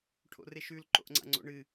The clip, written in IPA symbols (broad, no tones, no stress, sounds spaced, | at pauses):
ʈʰ o̰ r e ʃ ʉ l ǃ o̰ ʔ ŋ͡ǀ a̰ ŋ͡ǀ o̰ ɳ ɨ